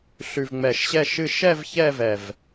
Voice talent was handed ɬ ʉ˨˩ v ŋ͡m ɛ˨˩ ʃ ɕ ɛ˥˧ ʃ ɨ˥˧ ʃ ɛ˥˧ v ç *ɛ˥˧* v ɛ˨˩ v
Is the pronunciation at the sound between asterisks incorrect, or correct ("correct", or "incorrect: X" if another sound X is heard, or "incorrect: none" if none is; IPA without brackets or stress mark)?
correct